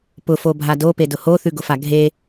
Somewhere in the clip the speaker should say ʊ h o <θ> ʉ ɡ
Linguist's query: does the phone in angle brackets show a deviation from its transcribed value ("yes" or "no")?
no